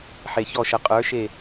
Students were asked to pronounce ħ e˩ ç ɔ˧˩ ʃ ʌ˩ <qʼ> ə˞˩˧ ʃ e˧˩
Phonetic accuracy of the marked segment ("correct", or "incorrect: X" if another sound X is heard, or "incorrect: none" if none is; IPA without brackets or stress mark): correct